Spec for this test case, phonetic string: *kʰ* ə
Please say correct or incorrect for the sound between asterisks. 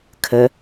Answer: correct